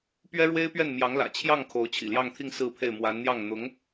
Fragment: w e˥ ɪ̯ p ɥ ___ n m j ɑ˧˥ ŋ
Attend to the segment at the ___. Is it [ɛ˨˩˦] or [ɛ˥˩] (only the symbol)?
ɛ˥˩